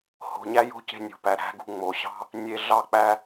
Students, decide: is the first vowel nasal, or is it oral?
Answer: oral